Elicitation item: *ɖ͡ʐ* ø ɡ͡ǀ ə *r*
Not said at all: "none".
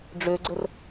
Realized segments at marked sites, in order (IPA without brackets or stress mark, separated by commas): ɖ͡ʐ, r